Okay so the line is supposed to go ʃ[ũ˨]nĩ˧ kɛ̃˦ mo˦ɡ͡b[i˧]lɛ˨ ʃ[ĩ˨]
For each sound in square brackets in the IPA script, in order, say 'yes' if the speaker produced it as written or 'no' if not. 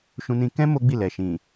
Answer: no, no, yes

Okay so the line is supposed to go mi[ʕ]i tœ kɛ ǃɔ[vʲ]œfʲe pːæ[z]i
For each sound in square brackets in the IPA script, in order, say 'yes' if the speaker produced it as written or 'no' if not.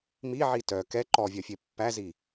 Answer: yes, yes, yes

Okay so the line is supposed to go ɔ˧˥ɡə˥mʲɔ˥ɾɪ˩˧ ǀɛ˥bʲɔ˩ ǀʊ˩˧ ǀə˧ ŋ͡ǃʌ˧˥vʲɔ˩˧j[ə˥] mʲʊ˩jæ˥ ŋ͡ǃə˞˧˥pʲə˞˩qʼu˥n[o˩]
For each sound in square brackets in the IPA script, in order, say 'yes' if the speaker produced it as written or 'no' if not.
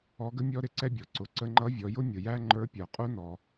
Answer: no, no

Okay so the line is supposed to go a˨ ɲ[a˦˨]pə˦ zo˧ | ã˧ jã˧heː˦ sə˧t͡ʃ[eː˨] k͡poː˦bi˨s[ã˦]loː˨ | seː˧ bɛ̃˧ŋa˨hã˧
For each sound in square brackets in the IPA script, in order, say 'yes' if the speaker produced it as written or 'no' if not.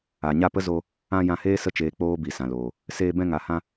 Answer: yes, yes, no

